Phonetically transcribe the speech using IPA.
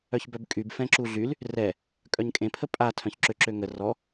œçbœbkʼyb fɛ̃ǁuɮyl | rɛ | kʼœɲkʼẽpʰə pʼa tʰœ̃çǁø ǁøŋə rɔ

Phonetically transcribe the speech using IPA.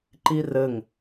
ǃirɘŋ

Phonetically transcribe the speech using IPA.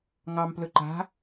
ŋɑmplɵ ǃa̤

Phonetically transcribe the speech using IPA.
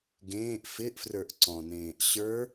ɡẽːʔ fɪʔfrə˞ʔ ǀɔ̃nẽːʔ ɕə˞

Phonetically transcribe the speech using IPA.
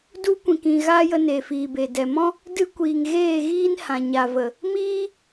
du˦kʷĩ˨kĩ˨ɣa˦ jə˧ne˨fiː˨be˨ dɛ˨mɔ̃˦ | dɨ˦ kʷiː˨ŋɣeː˦˨ɣiː˦n hã˨ɲa˨və˨ | miː˦

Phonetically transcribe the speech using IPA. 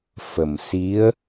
fə˨˩m si˧˥ə̯

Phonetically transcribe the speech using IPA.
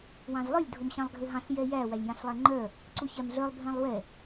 wɑ̃zlˠœlʲ dʱomɕɑ̃lˠɡʱøɦɑ̃ɬ jɛjæ wælʲjɑ̃ɬlˠæŋ͡ǃœ | ǀuçæmɮœlˠ bʱɛ̃lˠwɛ

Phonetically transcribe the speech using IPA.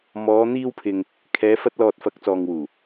mɔː˨˧n̪iː˧wpʰɪ˨ŋ | kʰɛː˨˧fɐ˧t̚lɔː˨t̚ fɐ˨˥k̚t͡sɔː˨ŋwuː˨˩

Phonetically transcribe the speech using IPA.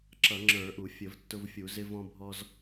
ǁʌ˧˩˧ŋ͡ǁə˞˧˩˧ʔu˧˩˧ fʲə˧˩˧vtːʊ˧vfʲu˧˩˧ zɪ˧ vɔ̃˧bʱɔ˧z

